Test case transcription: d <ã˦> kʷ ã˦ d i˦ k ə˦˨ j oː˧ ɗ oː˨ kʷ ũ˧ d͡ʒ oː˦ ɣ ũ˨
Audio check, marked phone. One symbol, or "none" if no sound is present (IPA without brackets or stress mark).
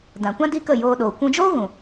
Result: ã˨